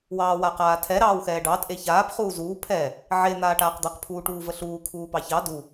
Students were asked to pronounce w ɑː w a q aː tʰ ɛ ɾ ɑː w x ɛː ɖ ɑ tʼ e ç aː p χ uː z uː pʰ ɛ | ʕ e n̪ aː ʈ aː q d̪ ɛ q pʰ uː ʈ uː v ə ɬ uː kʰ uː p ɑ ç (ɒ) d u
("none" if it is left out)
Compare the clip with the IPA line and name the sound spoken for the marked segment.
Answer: ɑ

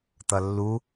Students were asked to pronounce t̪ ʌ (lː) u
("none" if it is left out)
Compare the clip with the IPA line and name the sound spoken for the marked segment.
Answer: lː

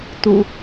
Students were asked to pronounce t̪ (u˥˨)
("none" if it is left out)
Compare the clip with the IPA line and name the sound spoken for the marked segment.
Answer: ṵ˨˩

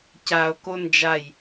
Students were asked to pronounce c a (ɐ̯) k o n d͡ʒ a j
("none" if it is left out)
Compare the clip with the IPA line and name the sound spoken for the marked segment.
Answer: o̯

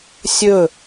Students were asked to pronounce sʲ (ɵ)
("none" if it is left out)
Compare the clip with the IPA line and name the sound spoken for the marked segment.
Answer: ɵ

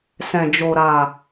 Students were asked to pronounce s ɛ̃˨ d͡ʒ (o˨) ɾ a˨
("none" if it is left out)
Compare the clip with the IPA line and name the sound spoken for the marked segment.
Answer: o˨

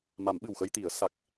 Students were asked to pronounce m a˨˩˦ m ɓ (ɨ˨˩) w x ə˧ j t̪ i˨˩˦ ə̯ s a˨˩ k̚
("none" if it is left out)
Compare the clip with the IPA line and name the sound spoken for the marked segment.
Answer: ɨ˨˩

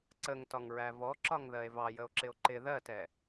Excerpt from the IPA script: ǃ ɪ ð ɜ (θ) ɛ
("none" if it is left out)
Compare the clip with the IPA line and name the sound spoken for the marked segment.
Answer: t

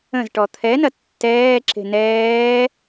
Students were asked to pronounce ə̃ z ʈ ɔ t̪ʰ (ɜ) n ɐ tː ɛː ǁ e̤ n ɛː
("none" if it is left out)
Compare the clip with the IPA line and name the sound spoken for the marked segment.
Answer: ɛ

